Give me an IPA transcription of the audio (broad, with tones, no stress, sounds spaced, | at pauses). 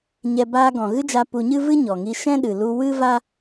ɲ ɛ˧ b aː˧ ɡ ɔ̃˨ ɣ ɨ˦ d͡ʒ a˧ p u˧ ɲ ɨ˦ v ɨ˦ ɲ ɔ˨ ŋ i˧ ʃ ɛ̃˦ ɗ ɨ˨ l u˧ w ɨ˦ v a˦